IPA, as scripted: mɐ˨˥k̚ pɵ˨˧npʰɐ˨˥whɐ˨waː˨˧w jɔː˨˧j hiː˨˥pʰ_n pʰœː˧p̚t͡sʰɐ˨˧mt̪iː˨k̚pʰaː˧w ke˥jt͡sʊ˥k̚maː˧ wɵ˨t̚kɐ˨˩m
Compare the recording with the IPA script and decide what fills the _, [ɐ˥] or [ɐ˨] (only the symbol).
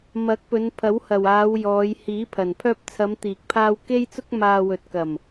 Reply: ɐ˨